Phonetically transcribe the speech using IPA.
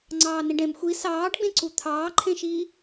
ŋ͡ǀ ɑː n ĩ ɖ ẽ m xʷ i s ɑː ɖ ɡ͡b ẽ ǀ u t̪ʰ ɑː ǃʰ ẽ ʃ iː

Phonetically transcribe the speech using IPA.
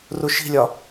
r u ʃ i̤ lʲ ɒ

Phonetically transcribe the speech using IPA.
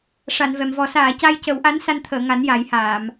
ʂ a˨˩˨ n v ɛ˨˩˨ m v ɔ˨˩˦ s aː˨˩˨ c a˧ j c ə˨˩˦ w ʔ a˧˥ n s a˧ n t̪ʰ əː˨˩˨ ŋ a˨˩˦ n j a˨˩˦ j h aː˨˩˨ m

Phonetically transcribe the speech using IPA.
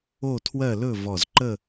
o˥˧ tʰ w ɜ˥˧ l ɵ˥˧ v ɔ˧˩ z ǃ ə˥˧

